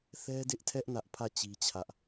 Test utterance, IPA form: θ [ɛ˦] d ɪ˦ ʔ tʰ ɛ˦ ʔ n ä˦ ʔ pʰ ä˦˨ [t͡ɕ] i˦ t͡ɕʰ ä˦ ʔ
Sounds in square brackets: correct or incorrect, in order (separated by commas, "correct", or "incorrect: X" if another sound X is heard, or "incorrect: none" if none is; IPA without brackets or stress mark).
correct, correct